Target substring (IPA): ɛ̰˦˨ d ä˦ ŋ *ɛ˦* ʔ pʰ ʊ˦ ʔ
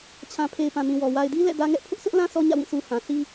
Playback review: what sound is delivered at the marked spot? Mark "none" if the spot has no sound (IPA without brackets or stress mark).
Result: ɛ˦